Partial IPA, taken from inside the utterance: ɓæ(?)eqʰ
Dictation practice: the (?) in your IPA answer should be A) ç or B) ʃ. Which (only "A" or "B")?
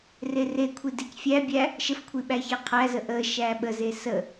A